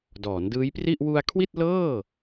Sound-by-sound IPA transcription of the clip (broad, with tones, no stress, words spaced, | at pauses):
dɔː˩˦ndɯː˦˥jpri˥˩ʔ wu˧a̯kʰwi˥˩t̚lɤː˥˩